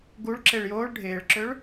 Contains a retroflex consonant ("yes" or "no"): yes